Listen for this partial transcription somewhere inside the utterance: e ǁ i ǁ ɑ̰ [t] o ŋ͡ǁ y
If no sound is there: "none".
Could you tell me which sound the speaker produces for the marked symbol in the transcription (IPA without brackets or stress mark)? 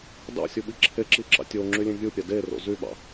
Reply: tʲ